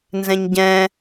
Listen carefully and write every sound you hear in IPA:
n z ɛ̃ ɲ ɟ ɛ̃

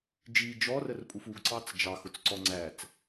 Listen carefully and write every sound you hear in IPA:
d͡ʒ i d͡ʒ ɔ r ə r pʼ u f u ɡ ǀ ɑ t͡s d͡ʒ ɑ x ʊ t͡s ǀ ɔ ŋ͡ǀ æ t͡s

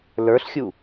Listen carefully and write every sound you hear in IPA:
l ə˞ ɬ xʲ u

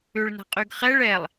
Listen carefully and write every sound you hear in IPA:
ʏ ɭ n a̤ qʼ y ɡ χ ɛ ɭ ɛ lˠ

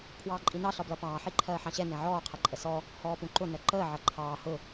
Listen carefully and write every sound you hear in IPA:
pʰ w ɑː ǃʼ ĩ n ɑ ɬ ɒ b l ʌ p ɑ̃ː ħ i ǃʰ ɜː ħ ɑ̃ ɕ ɛ n ɛ̃ ʕ ɔː qʰ ɪ ǃʼ ə s ɔ | h ɔː p ũ ǃ ʊ n ɜ ǃ əː ʕ ʌ ǃʰ ɑː h ʊ

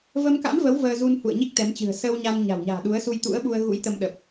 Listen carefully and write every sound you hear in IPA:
v ə˧ m k a̰˧˥ m v ə˨˦ w v əː˧ z u˧ n h ṵ˧˨ ə̯ ɲ i˦˥ k̚ t̪ ɛ˨˦ m t͡ɕ ɨ̤˨˩ ə̯ s əː˧ w ɲ a˧ n ɲ a̤˨˩ w ɲ a̤ː˨˩ ɗ u˨˦ ə̯ s u˧ j t̪ ṵ˧˥ ə̯ ɓ u˧ ə̯ ɣ ṵ˧˥ j t̪ ə˧ m ɗ ə˨˩ p̚

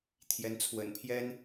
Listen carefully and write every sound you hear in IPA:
t̪ʰ j ɛ˧˥ n t͡sʰ w ə̰˨˩ n pʰ j ɛ˥ n

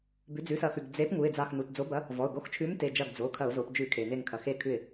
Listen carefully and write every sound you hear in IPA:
b ʉ˩˧ d͡z ʉ˩˧˩ s ɐ˧˩˧ x ʉ˩ ɡ d͡z e˨˥ p ŋ u˩˧˩ ɪ̯ d͡z a˧˩ x n u˩˧˩ t d͡z o˨˥ b ɐ˨˥ | v ɔ˩˧˩ ʊ̯ ɡ o˨˥ x t͡ʃʰ ʉ˨˥ m t e˩˧˩ d͡ʒ ɐ˧˩ ɡ d͡z o˩˧˩ kʰ ɐ˧˩˧ ʊ̯ z o˩˧ p d͡ʒ ʉ˧˩˧ kʰ e˩ n e˧˩ ŋ kʰ ɐ˩ x e˧˩ kʰ ʉ˧˩ ɪ̯

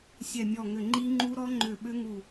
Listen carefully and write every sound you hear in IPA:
sʲ ɛ˧˩ mʲ ɔ˧˩ ŋ ʏ˧˩ ŋ͡ǃ i˦˥ ŋ͡ǃ u˦˥ ɾ ɔ˦˥ ŋ͡ǃ ʏ˧˩ ɓ ʏ˦˥ ŋ u˧˩

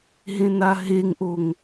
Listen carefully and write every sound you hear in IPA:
ɦ ẽ n a ɦ e ŋ ʔ o ŋ

